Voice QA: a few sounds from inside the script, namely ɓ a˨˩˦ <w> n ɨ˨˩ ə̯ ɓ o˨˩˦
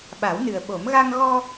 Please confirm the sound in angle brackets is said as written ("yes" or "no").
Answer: yes